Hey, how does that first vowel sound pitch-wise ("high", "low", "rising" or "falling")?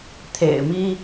low